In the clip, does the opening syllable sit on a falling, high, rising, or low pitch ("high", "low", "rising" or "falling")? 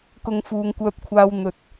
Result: low